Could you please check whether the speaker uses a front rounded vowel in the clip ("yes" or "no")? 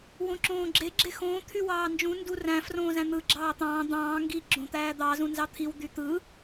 yes